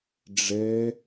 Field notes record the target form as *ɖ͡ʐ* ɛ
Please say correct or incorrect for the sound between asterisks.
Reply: correct